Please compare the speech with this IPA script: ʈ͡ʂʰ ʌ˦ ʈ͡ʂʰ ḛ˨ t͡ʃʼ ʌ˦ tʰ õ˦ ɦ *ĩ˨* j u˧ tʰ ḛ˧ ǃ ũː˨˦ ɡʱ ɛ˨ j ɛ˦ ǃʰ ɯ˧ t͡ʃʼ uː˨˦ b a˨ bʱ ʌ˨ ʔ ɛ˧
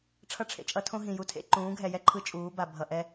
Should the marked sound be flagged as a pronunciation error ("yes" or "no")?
no